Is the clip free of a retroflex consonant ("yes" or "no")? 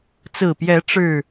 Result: no